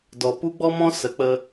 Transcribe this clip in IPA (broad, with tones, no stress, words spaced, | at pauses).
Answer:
dɔ˨pu˦ɡ͡bɔ˦mɔ̃˦ sə˨˦k͡pə˧